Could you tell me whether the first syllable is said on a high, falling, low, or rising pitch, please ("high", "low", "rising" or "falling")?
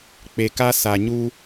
low